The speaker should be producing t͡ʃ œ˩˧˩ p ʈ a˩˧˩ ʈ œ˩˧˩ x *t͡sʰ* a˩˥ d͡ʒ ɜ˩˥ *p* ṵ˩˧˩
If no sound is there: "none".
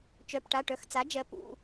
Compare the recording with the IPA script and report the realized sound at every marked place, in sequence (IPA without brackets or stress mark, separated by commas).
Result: t͡s, p